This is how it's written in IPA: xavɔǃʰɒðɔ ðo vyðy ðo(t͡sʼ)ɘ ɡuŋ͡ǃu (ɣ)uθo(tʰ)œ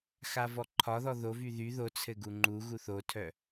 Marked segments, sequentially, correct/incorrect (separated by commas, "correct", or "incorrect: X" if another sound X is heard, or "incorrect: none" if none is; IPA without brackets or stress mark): incorrect: t͡sʰ, correct, correct